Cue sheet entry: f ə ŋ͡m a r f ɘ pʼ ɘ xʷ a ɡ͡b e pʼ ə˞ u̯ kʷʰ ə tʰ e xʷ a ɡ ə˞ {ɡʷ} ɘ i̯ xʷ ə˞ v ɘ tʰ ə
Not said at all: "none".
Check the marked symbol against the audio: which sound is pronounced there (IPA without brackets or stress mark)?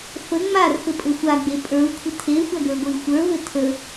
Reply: ɡʷ